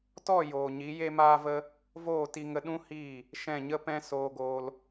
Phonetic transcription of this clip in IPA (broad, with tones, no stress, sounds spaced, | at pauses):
t ɔ˦˨ j oː˨ ɲ i˨˦ j e˦ m aː˦ v ə˦ | v oː˦˨ t i˧ ŋ ə˧ ɗ ũ˦ h iː˦˨ | ʃ ɛ̃˦˨ ɲ ə˦ p ɛ̃˦ s oː˧ ɡ oː˧ l